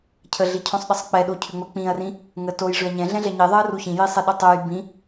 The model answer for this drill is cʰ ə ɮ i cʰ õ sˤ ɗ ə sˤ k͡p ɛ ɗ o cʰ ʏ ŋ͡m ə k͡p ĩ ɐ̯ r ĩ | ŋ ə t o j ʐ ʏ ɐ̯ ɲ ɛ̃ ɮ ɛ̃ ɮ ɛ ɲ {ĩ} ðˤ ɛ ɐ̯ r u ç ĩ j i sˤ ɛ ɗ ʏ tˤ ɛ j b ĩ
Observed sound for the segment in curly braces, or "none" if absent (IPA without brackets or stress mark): i